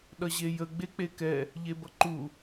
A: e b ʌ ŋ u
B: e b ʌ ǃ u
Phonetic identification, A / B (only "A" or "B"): B